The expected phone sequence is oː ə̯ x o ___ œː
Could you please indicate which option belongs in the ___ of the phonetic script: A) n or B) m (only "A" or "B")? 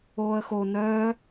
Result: A